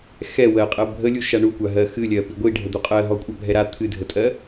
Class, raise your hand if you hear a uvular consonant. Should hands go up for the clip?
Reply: yes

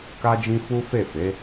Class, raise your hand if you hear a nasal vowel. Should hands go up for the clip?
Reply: yes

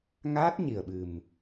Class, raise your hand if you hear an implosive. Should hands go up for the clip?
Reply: yes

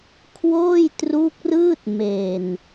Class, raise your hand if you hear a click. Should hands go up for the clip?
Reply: no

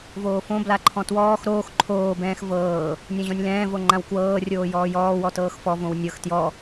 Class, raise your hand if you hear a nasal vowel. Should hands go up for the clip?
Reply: yes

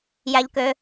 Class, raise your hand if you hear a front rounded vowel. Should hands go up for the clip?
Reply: yes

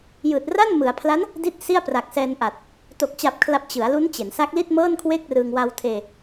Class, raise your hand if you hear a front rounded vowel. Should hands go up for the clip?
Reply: no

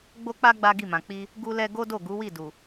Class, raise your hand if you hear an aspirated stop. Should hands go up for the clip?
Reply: no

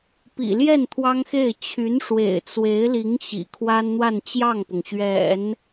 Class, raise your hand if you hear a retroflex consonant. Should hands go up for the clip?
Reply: yes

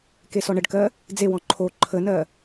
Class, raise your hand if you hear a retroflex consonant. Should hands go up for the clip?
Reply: yes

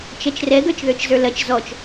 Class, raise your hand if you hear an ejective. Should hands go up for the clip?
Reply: no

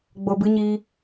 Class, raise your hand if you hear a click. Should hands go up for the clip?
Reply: no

